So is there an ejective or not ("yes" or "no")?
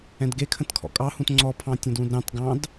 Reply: yes